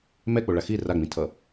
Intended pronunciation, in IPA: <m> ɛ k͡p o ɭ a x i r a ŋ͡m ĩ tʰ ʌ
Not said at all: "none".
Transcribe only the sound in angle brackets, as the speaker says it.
m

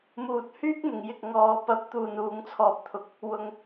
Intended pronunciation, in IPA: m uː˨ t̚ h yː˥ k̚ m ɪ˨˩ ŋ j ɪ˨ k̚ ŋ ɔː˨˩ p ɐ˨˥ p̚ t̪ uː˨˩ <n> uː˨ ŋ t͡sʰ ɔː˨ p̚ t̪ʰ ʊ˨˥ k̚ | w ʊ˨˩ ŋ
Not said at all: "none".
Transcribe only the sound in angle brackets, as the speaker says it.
n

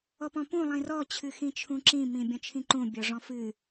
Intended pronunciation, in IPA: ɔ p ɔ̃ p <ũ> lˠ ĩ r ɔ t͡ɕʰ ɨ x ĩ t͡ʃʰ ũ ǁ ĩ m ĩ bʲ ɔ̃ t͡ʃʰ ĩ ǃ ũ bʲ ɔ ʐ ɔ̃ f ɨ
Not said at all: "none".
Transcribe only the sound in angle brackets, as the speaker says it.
ũ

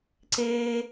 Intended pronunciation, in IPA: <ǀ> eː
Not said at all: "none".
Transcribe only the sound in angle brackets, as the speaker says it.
ǀ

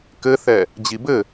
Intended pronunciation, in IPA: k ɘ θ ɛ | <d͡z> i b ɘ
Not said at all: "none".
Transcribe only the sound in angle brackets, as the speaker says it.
d͡ʑ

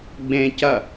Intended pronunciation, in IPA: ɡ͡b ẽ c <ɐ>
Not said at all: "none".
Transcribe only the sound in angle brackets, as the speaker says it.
ɐ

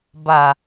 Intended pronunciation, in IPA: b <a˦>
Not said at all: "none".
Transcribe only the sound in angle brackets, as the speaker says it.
a˨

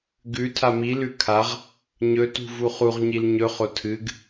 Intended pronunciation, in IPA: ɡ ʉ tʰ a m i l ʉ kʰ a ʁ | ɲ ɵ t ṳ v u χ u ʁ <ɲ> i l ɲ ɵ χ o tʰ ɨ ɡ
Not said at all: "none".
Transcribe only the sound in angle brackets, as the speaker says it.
ɲ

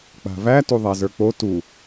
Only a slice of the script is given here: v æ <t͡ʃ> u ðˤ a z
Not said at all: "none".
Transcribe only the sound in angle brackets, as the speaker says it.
t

